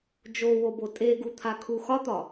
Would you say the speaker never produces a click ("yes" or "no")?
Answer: yes